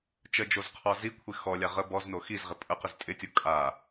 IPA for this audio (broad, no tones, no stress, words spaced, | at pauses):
t͡ʃəd͡ʒozqʰɔ zikʷʰɪ xɔlʲa ʁə bɔzno xizʁɪ pʼəqɪz tʼɪtʲo kʼa